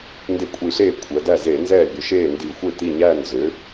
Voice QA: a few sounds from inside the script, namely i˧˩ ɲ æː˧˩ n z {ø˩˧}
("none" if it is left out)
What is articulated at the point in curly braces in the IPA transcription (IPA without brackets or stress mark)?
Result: ø˩˧